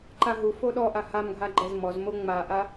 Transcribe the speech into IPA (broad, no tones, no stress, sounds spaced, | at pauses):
ǃ a ɦ u f o ɗ ɔ ʔ a h a m ɡʱ a ɡ͡ǃ ɛ z m ɔ z m o ŋ͡m a ʔ a